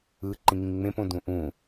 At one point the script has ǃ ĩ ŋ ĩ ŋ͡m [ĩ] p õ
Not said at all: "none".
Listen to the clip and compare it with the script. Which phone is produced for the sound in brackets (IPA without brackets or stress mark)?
ẽ